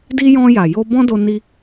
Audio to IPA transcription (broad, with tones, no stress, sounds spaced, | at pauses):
d i˧ j ɔ̃˧ j a˨ j o˧ b ɔ̃˦ d o˧ n i˧